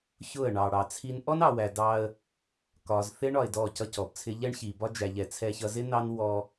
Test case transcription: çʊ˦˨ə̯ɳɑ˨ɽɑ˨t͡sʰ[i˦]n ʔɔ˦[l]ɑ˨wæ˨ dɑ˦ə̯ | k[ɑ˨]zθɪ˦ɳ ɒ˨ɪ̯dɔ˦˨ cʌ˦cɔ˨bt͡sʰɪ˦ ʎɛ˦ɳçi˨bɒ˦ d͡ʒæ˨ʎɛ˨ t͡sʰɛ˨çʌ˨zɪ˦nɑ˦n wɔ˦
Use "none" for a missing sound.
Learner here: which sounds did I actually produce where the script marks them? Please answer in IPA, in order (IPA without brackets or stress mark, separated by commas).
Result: i˦, n, ɒ˨